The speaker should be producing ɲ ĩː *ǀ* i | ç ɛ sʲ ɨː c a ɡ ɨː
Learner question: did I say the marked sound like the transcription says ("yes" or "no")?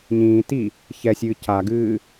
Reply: no